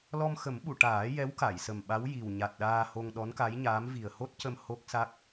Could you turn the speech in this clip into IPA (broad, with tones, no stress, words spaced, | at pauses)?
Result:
lɔ˧mxə˨˩˦m ɓu˨˩˨ʈaː˨˩˦ jɛ˧˥wka˨˩˨j sə˨˩mɓa˧˥w ji˨˩w ɲa˨˩t̚ɗaː˧ho˧ŋ ɗɔ˧˥nka˧˥jɲaː˧˥m vi˨˩ə̯ho˦˥t̚cə˧m ho˦˥k̚sa˦˥k̚